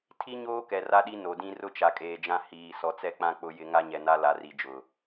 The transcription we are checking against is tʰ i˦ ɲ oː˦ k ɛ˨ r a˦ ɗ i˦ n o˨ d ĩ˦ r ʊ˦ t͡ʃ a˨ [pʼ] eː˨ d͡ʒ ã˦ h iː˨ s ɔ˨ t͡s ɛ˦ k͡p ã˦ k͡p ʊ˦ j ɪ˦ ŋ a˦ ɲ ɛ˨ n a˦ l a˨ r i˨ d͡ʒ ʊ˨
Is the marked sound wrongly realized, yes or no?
yes